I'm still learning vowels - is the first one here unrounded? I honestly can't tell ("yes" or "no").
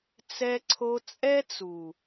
yes